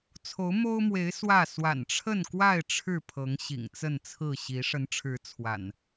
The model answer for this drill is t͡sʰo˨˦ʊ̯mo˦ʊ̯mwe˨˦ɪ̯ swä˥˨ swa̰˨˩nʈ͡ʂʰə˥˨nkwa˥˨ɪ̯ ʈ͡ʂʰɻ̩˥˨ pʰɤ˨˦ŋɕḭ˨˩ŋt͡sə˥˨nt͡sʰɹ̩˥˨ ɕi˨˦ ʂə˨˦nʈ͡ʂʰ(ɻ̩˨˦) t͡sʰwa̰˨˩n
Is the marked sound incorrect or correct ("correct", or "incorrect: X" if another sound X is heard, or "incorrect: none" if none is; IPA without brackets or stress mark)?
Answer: correct